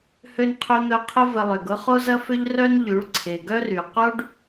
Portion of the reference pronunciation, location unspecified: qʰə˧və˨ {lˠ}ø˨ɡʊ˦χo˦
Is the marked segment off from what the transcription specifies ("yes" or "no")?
no